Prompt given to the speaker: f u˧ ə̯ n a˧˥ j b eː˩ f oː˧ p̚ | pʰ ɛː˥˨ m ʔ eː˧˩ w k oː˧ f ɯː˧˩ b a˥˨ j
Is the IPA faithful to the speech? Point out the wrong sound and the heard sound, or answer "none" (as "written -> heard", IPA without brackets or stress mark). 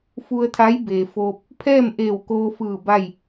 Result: n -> t̪ʰ